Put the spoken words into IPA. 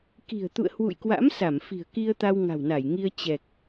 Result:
k i̤˨˩ ə̯ t̪ ṵ˧˨ ə̯ h w ṵ˧˨ j k w a̰˧˥ m s a˧˩ m f i̤˨˩ ə̯ k i˧ ə̯ t̪ a˧ w ŋ a̤˨˩ w n a˧˩ j ŋ i˧ ə̯ t͡ɕ ɛ˨˩ k̚

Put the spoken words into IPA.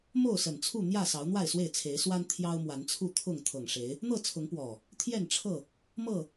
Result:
m o˥˨ ʊ̯ s ə˨˩ n t͡sʰ u˥˨ n̪ j ä˥˨ s ɑ˨˦ ʊ̯ n̪ w a˥˨ ɪ̯ s w e˥˨ ɪ̯ t͡sʰ e˨˦ ɪ̯ s w a˦ n t̪ʰ j ɑ˦ ʊ̯ m w a˨˦ n t͡sʰ u˥˨ t̪ʰ ʊ˥˨ ŋ t̪ʰ ɤ˨˩ ŋ ʂ e˨˦ ɪ̯ | n̪ ɤ˥˨ t͡sʰ ʊ˨˦ ŋ p w ɔ˨˩ | t̪ʰ j ɛ˥˨ n ʈ͡ʂʰ ɤ˥˨ | m ɤ˥˨

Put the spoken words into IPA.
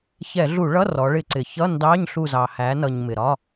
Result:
ç ɛ˧˩˧ ɮ u˧˩˧ ɭ ʌ˧˥˧ r ɔ˩˧ ɭ ɪ˧˩˧ ǀ ɪ˩ ç ʌ˧˥˧ n d ɑ˧˥˧ ɲ ɬ u˧˩ z ɑ˩ h æ˩˧ n ʌ˩ ɲ m ɪ˩ ɾ ɒ˧˥˧

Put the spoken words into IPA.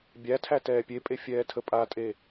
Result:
bʲ æ tʰ æ t ɛː pʲ e pʼ e fʲ ɛː tʰ ə pʼ a tʼ e

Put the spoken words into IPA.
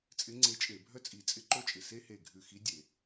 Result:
t͡sʼ ɪ˧˥ ŋ͡ǀ e˧˥ t͡ʃʼ e˧˩˧ bʱ œ˥ t͡sʼ i˧˩ t͡sʼ ɪ˥ ǃ o˥ t͡ʃʼ ɪ˧˩ s e˥ h e˧˩ ɡʱ ʉ˧˩ x i˧˥ dʲ e˧˩˧

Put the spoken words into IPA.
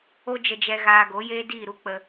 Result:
o˦ d͡ʒ ə˧ d͡ʒ ɛ˧ ɣ aː˧ ɡ o˨˦ j eː˦ d iː˦˨ ɾ u˦ k͡p ə˧

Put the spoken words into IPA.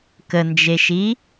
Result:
k ə n d͡ʒ e ʃ i

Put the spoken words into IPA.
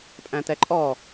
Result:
pʼ æ̃ t̪ ɛ ǃʼ ɔ

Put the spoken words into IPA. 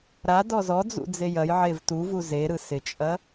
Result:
ɾ a d ɔ z ɔ d͡z ṵ d͡z e j ɐ j ʕ e v t u v u z e ɾ ɯ s ɪ t͡ʃʼ ɐ

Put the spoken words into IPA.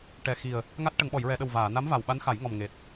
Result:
ʈ ɛ˨˩ x i˨˩ ə̯ | ŋ a˦˥ t̚ ʈ ə˨˩˨ ŋ ɓ ɔ˨˩˨ j ɹ ɛ˨˩˨ ɗ ə˨˩ w v aː˨˩˨ n a˧˥ m v a˨˩ w ɓ a˧˥ n x a˨˩˦ j ŋ ɔ˨˩ m ŋ e˨˩ t̚

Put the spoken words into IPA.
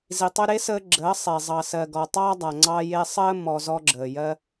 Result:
z i˨ tˤ ø˧ ɾ e˦ s əː˧ ɡ͡ǁ əː˨˦ sˤ e˨ zˤ ɑ˨ s ɜ˨ ɡ ɔ˨ tˤ ɑː˦ dˤ a˨ ŋ͡ǀ ɑ˧ j e˧ sˤ əː˦ m ɔ˧ z ɔ˧ ɡ͡ǁ əː˨ j ɜ˧

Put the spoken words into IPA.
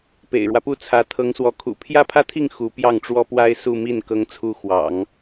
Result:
p ḛ˨˩ ɪ̯ ɻ w ä˦ p u˥˩ t͡sʰ ä˧˥ t̪ʰ ɤ˧˥ ŋ s w ɔ˧˥ kʰ ṵ˨˩ pʰ j ä˥ pʰ ä˥ t̪ʰ i˥˩ ŋ x u˧˥ p j ɑ˥˩ ŋ ʈ͡ʂ w ɔ˥ p w a˥ ɪ̯ s u˥˧ m i˥˩ n k ɤ˧˥ ŋ t͡sʰ u˧˥ x w ɑ̰˨˩˦ ŋ

